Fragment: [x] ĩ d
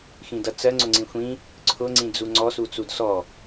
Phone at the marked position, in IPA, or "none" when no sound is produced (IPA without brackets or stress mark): x